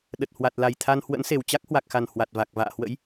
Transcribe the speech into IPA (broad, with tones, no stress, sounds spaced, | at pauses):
ɗ ə˨˩ t̚ h w a˨˩ t̚ l a˨˩ j t̪ʰ a˧ n h w ə̰˧˥ n s e˨˩ w t͡ɕ a˦˥ k̚ h w a˨˩ k̚ x a˨˩ n h w a˨˩ t̚ v a˨˩ k̚ v a̰ː˧˨ h w ə̰˧˥ j